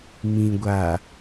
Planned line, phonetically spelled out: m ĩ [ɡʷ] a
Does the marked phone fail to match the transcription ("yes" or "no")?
no